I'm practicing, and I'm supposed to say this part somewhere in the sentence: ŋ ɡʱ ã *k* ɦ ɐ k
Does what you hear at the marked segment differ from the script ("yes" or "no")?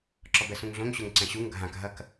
no